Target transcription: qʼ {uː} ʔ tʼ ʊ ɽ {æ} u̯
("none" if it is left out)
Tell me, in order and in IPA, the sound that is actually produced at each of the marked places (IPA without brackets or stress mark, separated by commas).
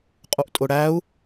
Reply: u, æ